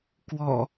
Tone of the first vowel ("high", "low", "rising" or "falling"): low